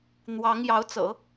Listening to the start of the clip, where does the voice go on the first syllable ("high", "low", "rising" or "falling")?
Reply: rising